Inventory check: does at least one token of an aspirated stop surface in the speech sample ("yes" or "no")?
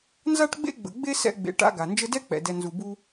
no